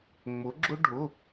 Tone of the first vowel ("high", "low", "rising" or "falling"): rising